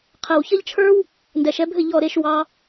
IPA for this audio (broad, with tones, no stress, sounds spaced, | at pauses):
qʰ ɛ˨ w ç ʌ˦ ʎ t͡ʃʰ ə˞˦ w | n d ɛ˨ ʃ ɛ˧ bʱ ɘ˦˨ ʎ ɔ˦˨ ɾ e˦ ʃ w ɑ˧